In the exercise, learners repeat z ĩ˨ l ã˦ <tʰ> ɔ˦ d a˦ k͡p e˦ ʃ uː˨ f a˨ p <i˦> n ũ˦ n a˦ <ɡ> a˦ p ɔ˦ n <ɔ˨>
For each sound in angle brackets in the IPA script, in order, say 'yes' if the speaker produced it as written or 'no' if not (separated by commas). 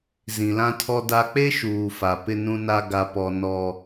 yes, no, yes, no